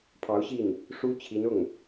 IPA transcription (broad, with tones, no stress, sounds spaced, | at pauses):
pʰ ɑ˧˥ ʊ̯ ɕ i˥˩ n | ʂ u˥ t͡ɕʰ i˧˥ n ʊ˥˩ ŋ